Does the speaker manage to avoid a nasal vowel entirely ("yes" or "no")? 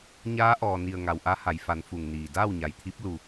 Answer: yes